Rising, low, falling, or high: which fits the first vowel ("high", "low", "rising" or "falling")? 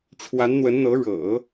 rising